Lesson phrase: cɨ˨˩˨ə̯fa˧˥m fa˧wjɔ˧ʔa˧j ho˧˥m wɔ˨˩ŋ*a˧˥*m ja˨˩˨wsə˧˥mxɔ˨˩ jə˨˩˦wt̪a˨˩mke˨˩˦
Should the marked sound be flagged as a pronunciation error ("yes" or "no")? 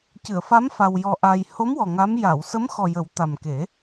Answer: no